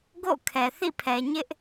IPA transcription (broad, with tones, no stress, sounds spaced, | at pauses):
ɡ o̰˦˨ kʰ ɛ˨ θ ḭ˦˨ pʰ ɛ˨ ɲ ɪ˦ ʔ